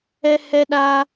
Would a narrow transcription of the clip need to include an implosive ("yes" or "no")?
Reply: yes